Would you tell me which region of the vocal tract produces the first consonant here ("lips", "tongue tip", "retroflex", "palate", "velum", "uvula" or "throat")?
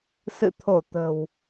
tongue tip